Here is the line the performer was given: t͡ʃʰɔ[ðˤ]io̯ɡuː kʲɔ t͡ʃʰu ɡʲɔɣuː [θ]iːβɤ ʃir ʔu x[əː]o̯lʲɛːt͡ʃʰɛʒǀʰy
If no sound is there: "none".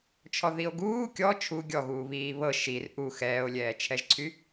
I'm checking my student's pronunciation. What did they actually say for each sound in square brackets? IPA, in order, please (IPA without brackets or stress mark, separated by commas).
ð, β, ɛː